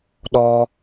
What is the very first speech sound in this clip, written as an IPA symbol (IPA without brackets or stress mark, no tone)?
ɗ